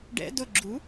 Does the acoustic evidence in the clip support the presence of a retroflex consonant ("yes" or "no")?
yes